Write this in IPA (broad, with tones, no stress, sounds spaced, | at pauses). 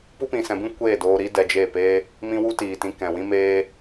p u˦ p ĩ˧ s ɛ̃˧ b ĩ˦ kʷ eː˦˨ d oː˧ ɾ iː˦ d ɛ˧ d͡ʒ e˦˨ p eː˦ | m ĩ˦ w u˦ t iː˨ t ĩ˧ k ɛ̃˨ w ĩ˦ m eː˦